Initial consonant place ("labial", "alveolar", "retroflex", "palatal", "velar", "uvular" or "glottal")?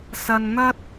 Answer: alveolar